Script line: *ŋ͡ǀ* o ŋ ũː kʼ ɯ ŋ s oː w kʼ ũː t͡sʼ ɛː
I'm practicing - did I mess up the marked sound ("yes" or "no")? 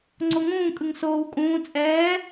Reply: no